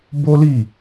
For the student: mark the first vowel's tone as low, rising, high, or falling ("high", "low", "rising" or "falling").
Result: high